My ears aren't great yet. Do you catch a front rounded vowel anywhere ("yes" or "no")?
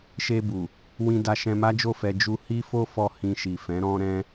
no